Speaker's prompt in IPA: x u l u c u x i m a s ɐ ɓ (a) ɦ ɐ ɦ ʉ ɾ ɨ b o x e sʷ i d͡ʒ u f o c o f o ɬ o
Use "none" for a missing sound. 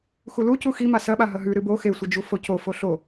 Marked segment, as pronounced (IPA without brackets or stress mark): a